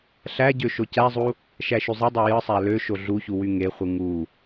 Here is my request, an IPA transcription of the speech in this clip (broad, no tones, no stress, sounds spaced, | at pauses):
ɬ æ ɟ ø ʃ o c æ zˤ u | ʃ æ ʃ y zˤ e dˤ o j ɯ sˤ æ l ø ʃ o ɮ u ç u w y ŋ e χʷ ɯ ŋ u